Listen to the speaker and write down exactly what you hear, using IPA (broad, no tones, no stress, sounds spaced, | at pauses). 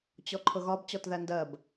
t͡ɕ ɔ ǃʰ ʊ ɣ ɒ b t͡ɕ ɔ t ð æ n d ɜ b